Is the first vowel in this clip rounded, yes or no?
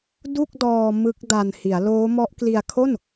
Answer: yes